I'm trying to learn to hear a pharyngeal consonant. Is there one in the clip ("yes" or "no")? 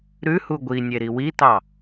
no